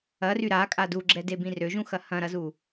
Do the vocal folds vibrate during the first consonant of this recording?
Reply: yes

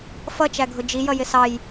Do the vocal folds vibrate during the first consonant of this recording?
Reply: no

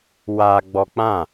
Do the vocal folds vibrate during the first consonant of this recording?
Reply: yes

